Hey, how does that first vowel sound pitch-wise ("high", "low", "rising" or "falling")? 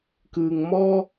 low